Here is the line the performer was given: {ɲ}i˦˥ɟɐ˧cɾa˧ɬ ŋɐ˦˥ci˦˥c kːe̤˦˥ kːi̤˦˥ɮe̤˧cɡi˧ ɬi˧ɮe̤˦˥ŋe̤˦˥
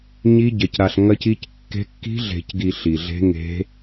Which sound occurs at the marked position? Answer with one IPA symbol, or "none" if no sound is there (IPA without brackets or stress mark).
ɲ